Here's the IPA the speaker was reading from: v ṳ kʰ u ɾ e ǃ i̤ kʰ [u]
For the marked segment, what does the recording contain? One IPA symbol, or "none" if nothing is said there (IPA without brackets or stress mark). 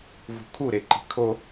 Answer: o